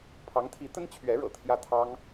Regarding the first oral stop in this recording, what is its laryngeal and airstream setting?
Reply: aspirated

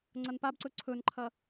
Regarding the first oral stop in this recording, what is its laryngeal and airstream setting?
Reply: click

